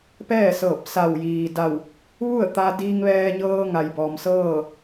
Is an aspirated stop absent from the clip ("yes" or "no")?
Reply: yes